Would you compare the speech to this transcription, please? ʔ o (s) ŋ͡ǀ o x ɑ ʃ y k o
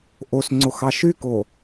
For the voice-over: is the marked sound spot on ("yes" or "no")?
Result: yes